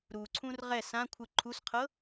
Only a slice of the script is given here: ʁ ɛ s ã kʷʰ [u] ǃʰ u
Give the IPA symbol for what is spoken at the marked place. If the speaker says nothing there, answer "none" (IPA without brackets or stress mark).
ɯ